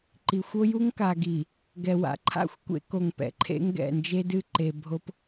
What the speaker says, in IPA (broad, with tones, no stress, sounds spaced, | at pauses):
ǃ i˨ xʷ o˦ j u˦ ŋ k a˨ ɡ i˨ | ɡ ɛ˨ w a̰˨ ǃʰ a̰˦˨ xʷ kʷ ḛ˦ k o˨ ŋ p ɛ̰˨ ǃʰ ḛ˦ ŋ ɡ ɛ̰˦˨ n d͡ʒ e˦ d ɨ˦˨ ǃ e˨ bʱ o˦ p